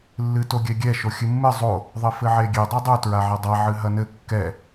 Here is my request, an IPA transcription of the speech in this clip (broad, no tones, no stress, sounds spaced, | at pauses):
lː ɨ t o ɡʲ ɛ ɡʲ ɛ ʃ o xʲ ɨ mː ɨ zˤ o | ðˤ ɘ f ɘ ʕ e ɡʲ e dˤ e dˤ u t ɹ a ʕ ɛ dˤ a ʕ ɨ ɦ ɐ n ɘ kː ɛ